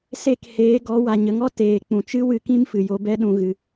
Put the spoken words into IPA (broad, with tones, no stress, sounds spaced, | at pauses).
s e˦˨ k h eː˨˦ ɡ ɔ˨˦ w a˨ ɲ ə˨ ŋ ɔ˦ t eː˨ k͡p ũ˨ t͡ʃ ɨ˦ w ɨ˧ k ĩ˦ m f ɨ˨ j o˧ b ɛ˦ ɗ ũ˧ ɣ ɨ˧